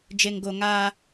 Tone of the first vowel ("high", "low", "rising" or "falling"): low